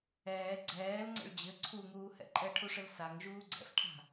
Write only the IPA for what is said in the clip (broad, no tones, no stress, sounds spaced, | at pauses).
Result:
ɛː ɡ͡ǀ ɛː l ŋ͡ǀ ə̰ ɭ d͡ʑ ɘ ǀʰ u ŋ uː h ɛ̰ ǃʼ ɛ ʈʰ u ʂ ɘ l s a ŋ ʒ uː ɡ͡ǀ ɛ̰ f ʈʰ a̤